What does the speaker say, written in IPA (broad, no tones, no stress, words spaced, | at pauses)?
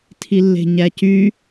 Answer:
tʰilːe̤ɲæcy